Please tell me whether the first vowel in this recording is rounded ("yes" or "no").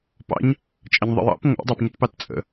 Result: no